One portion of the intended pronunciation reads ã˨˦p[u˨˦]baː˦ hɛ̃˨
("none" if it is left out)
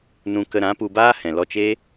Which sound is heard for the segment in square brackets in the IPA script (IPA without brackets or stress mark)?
u˧